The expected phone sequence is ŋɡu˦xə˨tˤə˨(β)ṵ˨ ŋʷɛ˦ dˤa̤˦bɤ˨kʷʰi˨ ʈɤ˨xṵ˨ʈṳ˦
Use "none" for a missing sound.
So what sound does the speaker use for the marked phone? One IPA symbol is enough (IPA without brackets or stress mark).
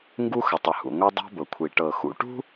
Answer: h